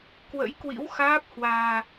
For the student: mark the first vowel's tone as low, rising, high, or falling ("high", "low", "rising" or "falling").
rising